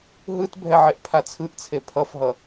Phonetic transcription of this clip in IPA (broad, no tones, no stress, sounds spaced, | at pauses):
ɦ ɯ t bʱ ɛ ʕ e ʔ pʰ a t͡sʰ ɯ ʔ t͡sʰ e pʰ ʌ f ɦ ʌ